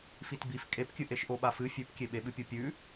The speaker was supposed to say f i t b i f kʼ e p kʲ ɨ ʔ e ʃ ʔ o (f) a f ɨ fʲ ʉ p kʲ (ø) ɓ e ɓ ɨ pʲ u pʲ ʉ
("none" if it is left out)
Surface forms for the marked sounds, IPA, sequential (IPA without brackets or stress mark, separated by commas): ɓ, e